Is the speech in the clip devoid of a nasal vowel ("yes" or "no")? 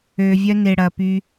yes